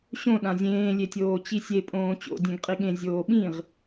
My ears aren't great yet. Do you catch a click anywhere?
no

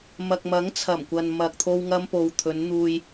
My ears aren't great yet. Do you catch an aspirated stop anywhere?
yes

